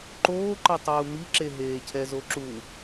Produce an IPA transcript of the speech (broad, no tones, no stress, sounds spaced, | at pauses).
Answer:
ǃ oː ǃ ʌ tˤ uː m i ǁ e ɦ eː cʰ ɛ z o ǁ u